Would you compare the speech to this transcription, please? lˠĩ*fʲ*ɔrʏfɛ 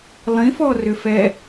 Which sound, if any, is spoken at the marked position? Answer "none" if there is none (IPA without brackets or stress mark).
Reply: f